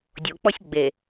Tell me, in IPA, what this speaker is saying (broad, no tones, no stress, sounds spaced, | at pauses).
dʲ o k͡p ɔ sʲ ɡ͡b e